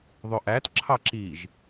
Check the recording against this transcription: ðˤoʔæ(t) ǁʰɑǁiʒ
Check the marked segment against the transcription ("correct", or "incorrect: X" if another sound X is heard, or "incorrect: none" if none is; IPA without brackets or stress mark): correct